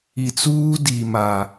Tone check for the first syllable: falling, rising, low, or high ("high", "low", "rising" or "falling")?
low